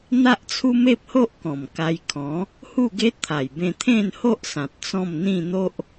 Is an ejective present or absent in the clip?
absent